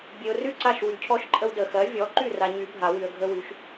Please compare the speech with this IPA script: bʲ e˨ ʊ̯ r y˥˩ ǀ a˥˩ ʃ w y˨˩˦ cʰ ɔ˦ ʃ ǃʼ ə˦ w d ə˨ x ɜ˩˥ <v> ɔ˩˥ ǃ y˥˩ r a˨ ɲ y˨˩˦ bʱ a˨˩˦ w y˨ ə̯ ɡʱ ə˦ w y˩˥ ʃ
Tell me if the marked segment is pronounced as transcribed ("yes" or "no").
no